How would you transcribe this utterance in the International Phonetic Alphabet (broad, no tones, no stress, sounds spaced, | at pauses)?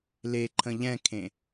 l e ǃʰ ə̃ ʎ ɛ̃ kʰ ẽ